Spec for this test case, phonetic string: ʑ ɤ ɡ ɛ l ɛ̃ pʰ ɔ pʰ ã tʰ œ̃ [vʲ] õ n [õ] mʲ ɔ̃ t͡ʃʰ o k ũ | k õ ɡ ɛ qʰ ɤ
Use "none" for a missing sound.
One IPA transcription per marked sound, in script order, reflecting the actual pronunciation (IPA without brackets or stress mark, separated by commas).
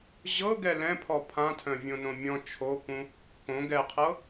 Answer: vʲ, õ